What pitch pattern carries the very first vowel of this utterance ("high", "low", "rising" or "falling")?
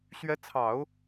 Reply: rising